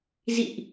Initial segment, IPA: z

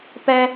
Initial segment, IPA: p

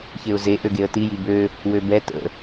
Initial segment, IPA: ç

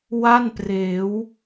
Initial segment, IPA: w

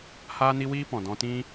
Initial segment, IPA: h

